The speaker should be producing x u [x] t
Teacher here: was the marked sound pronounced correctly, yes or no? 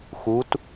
no